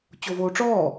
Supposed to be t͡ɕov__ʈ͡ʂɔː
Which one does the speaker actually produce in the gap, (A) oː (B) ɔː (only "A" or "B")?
A